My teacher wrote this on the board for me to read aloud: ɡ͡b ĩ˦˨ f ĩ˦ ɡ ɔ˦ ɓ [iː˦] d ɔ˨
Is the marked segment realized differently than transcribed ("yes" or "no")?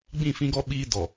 no